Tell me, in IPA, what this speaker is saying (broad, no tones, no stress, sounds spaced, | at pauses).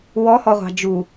w ɔ h ɔ ʁʷ ɑ̤ d͡ʒ u